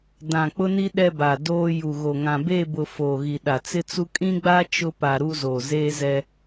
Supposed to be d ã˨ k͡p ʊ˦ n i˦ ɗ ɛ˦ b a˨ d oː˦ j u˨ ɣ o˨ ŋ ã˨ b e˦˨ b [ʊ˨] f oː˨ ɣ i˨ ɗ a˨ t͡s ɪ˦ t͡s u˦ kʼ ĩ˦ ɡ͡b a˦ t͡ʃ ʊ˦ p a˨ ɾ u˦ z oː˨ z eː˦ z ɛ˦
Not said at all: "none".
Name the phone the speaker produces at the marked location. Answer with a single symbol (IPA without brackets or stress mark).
ʊ˨